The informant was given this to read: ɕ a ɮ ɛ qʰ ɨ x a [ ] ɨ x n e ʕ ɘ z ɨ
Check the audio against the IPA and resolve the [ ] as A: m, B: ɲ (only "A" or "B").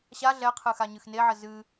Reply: B